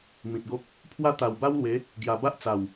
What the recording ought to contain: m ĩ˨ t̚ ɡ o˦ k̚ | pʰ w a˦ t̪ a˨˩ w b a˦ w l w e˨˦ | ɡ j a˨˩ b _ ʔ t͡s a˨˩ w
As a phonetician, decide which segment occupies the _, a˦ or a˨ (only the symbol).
a˦